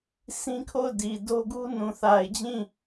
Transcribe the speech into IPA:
s ĩ˦ kʰ o˦˨ ʊ̯ d i˨ d o˦ ɡ u˦ n ũ˨ θ a˨ ɪ̯ d͡ʑ ĩ˦˨

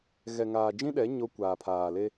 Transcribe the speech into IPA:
ɣ ɛ˨ ŋ aː˨ d͡ʒ ĩ˦ ɗ ɛ˨˦ ɲ o˦ kʷ aː˨ pʰ aː˨ l e˦

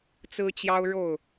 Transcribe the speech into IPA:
t͡s ɹ̩˦ t͡ɕ j ɑ˦ ʊ̯ ɻ o˥˨ ʊ̯

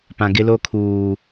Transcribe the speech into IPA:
p ã˨ ɡ ɪ˦ l o˦ kʰ uː˨

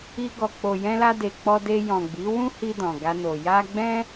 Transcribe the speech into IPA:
i˧ ɡ ɔ˨ k͡p o˨ j ɛ̃˧ l a˧ d e˨ k͡p ɔ˧ d e˧ j ɔ̃˨ ɡ͡b i˨˦ w ũ˦ h i˧ d ɔ̃˨ ɡ a˧ n o˨ j a˧ ɡ͡b ɛ̃˦

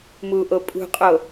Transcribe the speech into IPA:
m u ʔ o pʼ ṳ qʼ o

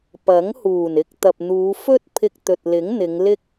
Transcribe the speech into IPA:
p ɐ˨˥ ŋ h uː˨˩ n ɪ˧ k̚ t̪ ɐ˨ p̚ n̪ uː˨˧ f ɵ˥ t̚ pʰ ɪ˧ k̚ t̪ ɵ˨ t̚ l ɪ˨˥ ŋ n̪ ɪ˨˧ ŋ l ɪ˥ k̚

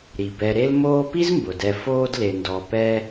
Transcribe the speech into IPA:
ɾ i˩ b ɛ˨ ɾ e˦ l m oː˦ p i˥ z m b ʊ˩ d ɛ˨ f oː˦ d l e˨ n d ɔ˨ p ɛ˦

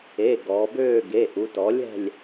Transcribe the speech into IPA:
e˩˧˩ ɡ ɔː˩˧ b øː˦˨ ɡ e˩˧˩ ʔ u˩˧ t ɔ˩˥ lʲ ɛ̤˦˨ lʲ

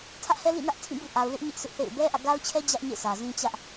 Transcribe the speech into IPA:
tʰ ä˦ ʔ h ɛ˦ l ḭ˦˨ n ä˦ ʔ tʰ ĩ˦˨ b ṵ˦˨ ʔ a˨ ʊ̯ l ɪ˦ ʔ ɲ ɪ˦ ʔ sʰ ɪ˦ ʔ θ ḛ˦˨ ɪ̯ b ɛ˦ ʔ ä̰˦˨ ɡ a˦ ʊ̯ t͡ɕʰ ɛ˦ d͡ʑ ä˦ ʔ ɲ ḛ˦˨ sʰ ä˨ z ĩ˦ t͡ɕ ä˦ ʔ

